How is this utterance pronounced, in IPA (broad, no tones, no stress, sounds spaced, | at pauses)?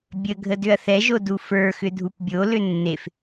bʲ ə ɡʱ ə d ʏ ɐ̯ θ ɛ ʒ o d u f ə˞ x ʏ dʱ u p bʲ o l ʏ nː e f